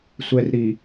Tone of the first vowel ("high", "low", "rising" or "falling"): low